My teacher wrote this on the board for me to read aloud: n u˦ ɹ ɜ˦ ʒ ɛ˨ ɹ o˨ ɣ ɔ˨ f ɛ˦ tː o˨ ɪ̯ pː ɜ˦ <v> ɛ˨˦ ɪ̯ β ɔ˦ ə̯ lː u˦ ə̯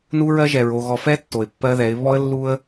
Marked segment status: incorrect: ð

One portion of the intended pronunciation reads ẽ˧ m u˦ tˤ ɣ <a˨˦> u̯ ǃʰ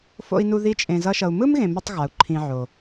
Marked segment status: correct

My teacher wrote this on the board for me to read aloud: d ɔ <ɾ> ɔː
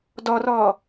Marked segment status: incorrect: r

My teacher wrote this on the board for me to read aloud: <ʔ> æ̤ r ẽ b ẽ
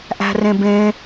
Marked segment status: correct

